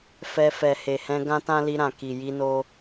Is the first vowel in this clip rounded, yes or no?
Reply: no